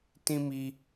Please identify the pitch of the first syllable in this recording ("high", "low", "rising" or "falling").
high